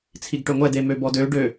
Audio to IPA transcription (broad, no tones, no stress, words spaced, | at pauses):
t͡sʰiɡʈøŋʷɛ demøbɔdø ɖø